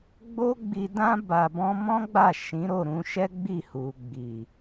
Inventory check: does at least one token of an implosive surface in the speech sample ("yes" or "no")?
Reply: no